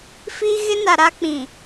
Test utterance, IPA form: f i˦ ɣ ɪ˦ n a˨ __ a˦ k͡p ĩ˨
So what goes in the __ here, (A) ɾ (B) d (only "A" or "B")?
A